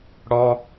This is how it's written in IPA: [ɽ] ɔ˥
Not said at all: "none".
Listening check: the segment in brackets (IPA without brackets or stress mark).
ɽ